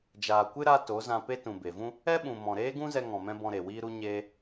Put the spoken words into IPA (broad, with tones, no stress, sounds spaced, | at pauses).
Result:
d͡ʒ aː˨ kʷ ɨ˦ ɾ a˧ t o˨˦ z ã˧ p e˦ t ũ˨ b e˨ v ũ˦ | ɛ˦ ɓ ũ˨ m ɔ̃˨ ɾ eː˦ ɡ ũ˦ z ɛ˧ ŋ ɔ̃˨ m ɛ̃˧ b ɔ̃˧ ɾ e˨ w iː˦ ɾ u˧ ɲ eː˧